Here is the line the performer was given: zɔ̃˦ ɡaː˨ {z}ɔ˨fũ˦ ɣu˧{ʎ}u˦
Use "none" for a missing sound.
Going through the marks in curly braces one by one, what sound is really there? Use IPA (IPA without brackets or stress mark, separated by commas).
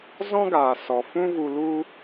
s, l